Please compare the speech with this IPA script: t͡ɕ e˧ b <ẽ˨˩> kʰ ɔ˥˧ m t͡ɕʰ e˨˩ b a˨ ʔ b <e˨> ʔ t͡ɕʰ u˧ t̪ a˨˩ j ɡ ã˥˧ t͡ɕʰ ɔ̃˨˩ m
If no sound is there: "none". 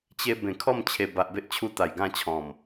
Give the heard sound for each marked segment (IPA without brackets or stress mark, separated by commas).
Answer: ẽ˨˩, e˦